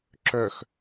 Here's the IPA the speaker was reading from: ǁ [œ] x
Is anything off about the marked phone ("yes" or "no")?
no